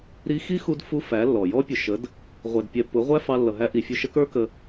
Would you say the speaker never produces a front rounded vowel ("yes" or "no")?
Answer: yes